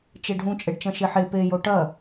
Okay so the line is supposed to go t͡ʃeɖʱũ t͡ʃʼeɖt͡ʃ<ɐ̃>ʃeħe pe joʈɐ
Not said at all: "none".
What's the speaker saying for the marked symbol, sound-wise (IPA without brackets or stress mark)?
ɐ̃